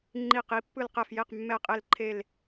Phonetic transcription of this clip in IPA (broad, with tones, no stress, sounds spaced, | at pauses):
ŋ͡ǃ i˥˩ q i˥˧ pː ɯ˥˩ l q ɛ˥˩ f j e˥˩ q mː ɛ˥˩ qʼ e˥˧ l ǃʰ e˥˧ l